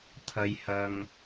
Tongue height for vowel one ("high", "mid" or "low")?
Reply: low